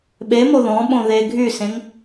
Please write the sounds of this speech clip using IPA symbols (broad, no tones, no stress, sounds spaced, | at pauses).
ɓ e m o ð ɔ̃ ɓ õ ð e ɡʱ y s ẽ ŋ